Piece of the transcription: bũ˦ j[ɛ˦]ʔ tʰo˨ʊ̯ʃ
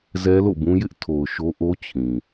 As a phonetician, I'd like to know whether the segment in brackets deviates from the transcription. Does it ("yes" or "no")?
yes